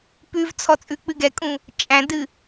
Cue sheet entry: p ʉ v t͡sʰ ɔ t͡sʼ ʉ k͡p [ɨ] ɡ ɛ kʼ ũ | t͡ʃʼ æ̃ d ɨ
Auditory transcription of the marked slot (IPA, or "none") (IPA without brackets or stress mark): ɨ